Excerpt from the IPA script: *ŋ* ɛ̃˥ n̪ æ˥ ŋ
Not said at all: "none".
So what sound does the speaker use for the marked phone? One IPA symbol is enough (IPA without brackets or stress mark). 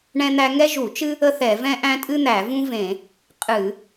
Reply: ɳ